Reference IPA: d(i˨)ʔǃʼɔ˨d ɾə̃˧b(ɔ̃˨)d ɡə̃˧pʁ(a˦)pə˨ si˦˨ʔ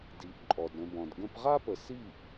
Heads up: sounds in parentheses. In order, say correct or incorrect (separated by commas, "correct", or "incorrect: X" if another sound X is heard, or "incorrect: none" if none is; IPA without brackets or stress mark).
incorrect: i˨˦, correct, correct